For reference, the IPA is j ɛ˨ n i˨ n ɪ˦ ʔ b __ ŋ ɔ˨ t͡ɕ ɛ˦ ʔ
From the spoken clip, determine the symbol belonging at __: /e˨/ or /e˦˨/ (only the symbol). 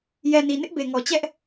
e˨